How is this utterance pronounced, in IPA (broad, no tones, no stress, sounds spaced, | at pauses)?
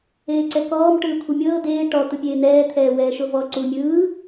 eː ǀ ɛ k ɔː m ʈ ɯː kʷʰ ɯ mʲ ɤː d̪ eː ʈ ɔ t̪ ɯ pʲ eː n̪ ɛː t̪ʰ ɛː w ɛː ʃ o v ɔ ǀ u mʲ ɯː